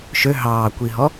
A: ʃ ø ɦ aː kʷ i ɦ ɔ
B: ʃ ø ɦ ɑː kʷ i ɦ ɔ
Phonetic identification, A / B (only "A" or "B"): B